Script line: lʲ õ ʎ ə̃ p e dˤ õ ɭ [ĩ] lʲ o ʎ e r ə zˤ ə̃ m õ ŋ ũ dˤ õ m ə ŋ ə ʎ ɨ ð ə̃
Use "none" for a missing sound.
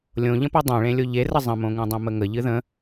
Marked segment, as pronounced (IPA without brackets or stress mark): ẽ